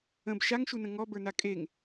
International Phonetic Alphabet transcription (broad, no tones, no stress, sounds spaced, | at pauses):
ə̃ b ʃ a ŋ ʃ u n ə̃ ŋ ɔ b ə˞ n a kʼ e ŋ